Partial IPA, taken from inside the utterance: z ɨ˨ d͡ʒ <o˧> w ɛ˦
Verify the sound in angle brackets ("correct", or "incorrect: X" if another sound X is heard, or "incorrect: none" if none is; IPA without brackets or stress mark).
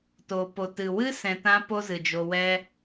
correct